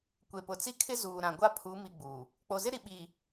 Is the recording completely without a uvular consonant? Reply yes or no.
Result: yes